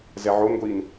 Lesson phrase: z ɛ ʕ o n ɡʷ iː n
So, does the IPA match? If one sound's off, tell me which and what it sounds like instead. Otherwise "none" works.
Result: none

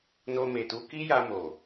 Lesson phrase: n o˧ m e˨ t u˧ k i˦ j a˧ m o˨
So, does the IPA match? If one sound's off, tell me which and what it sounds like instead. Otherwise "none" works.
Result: none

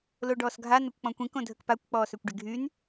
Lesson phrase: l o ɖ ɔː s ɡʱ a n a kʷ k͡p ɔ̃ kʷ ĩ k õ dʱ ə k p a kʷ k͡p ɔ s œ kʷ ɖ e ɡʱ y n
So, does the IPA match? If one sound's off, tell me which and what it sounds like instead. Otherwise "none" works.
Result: ɔ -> ɔː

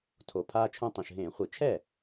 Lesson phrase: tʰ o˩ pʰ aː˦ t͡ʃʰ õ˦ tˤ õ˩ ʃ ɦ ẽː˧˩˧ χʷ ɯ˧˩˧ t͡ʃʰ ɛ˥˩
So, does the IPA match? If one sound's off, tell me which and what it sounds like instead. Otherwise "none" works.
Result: none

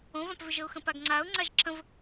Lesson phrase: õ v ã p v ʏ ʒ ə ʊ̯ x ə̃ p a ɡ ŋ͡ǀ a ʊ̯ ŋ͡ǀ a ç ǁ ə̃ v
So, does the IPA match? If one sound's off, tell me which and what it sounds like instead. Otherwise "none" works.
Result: ç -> ʒ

